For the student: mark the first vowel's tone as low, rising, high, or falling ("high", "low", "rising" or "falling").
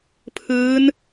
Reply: rising